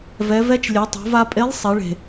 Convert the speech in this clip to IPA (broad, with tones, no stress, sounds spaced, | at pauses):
v ɛ˩˧ v ɛ˧˥ t͡ʃ lʲ e˩˧ tˤ o̤˩˧ v a˧ pʼ e˧˥ lˠ sˤ e˩˧ ɭ e̤˩